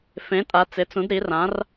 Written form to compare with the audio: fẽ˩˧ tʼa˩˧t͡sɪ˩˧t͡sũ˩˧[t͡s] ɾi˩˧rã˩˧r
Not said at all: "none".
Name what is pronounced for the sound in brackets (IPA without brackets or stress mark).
d